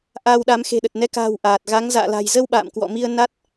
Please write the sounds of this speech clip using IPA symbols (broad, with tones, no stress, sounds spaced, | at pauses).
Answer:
ʔ aː˧ w ɗ a˨˦ m x e̤˨˩ ɗ ə˨˩ t̚ n ɛ˨˦ k a̤ː˨˩ w ʔ aː˨˩ t̚ ɣ a˨˦ ŋ z a̰ː˧˨ l a̤˨˩ j z ə˧ w ɓ a̰ː˧˨ m k w ɔ̰˧˨ m i˧ ə̯ n a˦˥ t̚